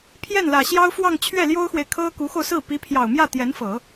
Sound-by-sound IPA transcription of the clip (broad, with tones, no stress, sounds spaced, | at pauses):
pʰ j ɛ˥˩ n l ä˨˩ ɕ j ɑ˥ ʊ̯ f w ɑ˥˧ ŋ t͡ɕʰ ɥ ɛ˥˩ l j o˥ ʊ̯ x w e˨ ɪ̯ kʰ ɤ˥ k u˧˥ x o˧ ʊ̯ s ɹ̩˥˩ p i˧˥ pʰ j ɑ˨˩ ʊ̯ m j ä˥˩ t̪ j ɛ˧˥ n f ɤ˨˩˦